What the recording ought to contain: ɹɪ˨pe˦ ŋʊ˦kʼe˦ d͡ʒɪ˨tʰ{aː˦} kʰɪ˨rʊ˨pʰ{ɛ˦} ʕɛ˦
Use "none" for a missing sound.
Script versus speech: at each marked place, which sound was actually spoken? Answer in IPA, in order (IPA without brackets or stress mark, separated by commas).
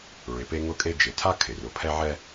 a˦, ɛ˦